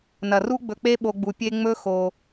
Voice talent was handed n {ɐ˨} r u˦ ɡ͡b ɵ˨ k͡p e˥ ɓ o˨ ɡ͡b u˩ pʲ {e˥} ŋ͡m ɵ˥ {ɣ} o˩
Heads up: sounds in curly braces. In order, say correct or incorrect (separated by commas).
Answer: incorrect, correct, incorrect